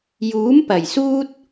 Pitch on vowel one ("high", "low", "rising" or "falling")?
rising